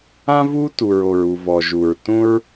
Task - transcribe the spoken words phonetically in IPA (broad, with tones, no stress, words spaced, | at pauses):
ã˥vu˥ tu˩ɹo˩ɹu˩ vɔ˩ʒu˩ɹ tũ˥ɹ